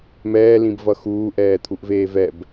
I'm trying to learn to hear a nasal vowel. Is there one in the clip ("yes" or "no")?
yes